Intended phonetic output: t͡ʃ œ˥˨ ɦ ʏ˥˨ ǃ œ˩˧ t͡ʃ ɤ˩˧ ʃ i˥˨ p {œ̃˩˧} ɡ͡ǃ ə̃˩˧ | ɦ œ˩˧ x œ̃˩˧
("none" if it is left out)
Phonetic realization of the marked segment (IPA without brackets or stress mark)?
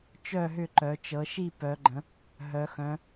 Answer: œ˩˧